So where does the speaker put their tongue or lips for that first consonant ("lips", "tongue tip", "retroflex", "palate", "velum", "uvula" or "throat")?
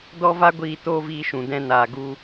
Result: tongue tip